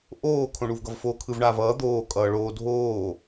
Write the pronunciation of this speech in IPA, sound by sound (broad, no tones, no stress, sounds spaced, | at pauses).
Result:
ʔ oː kʰ õ ɳ u v ɡ ʌ v f o kʰ ɯ v ɳ aː v ʌː d̪ oː kʼ ʌː ɭ oː dʱ oː